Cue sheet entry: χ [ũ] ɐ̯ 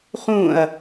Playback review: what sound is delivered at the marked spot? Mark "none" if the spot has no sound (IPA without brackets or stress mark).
ũ